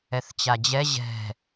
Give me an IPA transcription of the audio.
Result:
ɛ θ t͡ɕ a d͡ʑ ɛ ʑ ɛ̤

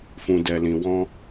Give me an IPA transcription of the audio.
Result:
f ũ˨ d ɛ˨ l ĩ˨ w ɔ̃˧

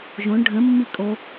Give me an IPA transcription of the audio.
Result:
ʒ õ ɳ ɖʱ ə̃ mː i kʼ o

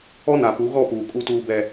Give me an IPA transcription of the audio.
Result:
ɔ˦ n a˨ p u˨˦ ɣ ɔ˦˨ p uː˨ kʼ u˦ t uː˦ b ɛ˦

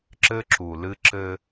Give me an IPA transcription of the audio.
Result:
ǁ ɘ˦ ǁ u˨ l ɨ˦ ǁ ɘ˦

